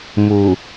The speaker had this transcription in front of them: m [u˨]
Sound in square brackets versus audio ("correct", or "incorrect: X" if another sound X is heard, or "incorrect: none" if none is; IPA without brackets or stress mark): correct